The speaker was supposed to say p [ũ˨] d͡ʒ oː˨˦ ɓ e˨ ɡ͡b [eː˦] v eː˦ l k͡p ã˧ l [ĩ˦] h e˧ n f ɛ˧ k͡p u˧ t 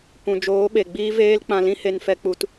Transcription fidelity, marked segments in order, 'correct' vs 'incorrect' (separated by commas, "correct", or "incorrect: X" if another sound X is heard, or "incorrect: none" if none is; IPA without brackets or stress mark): correct, incorrect: iː˦, correct